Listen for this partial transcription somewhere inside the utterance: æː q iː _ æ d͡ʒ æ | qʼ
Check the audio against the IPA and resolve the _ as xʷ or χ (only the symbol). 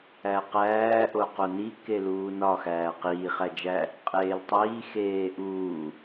χ